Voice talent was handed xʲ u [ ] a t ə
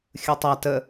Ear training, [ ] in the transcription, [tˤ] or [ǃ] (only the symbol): tˤ